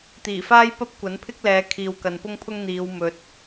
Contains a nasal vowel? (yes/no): no